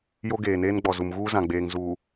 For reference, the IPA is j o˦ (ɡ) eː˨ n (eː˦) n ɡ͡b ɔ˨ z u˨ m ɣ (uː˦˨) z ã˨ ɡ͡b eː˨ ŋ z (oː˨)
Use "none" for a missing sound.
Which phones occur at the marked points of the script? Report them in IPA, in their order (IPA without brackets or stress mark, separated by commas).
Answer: ɡ, eː˦, uː˦, uː˨